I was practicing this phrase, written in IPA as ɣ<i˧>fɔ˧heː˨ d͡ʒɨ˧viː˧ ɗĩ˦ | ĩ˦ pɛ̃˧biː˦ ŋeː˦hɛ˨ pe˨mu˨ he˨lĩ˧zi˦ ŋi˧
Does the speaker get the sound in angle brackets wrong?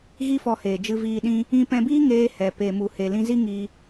yes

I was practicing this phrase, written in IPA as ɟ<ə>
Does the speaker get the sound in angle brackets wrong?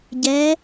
yes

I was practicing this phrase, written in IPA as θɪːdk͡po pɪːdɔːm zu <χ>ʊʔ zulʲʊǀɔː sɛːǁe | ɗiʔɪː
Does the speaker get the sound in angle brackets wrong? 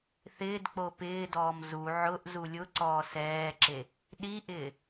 yes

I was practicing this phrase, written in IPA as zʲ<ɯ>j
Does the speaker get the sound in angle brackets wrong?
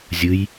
no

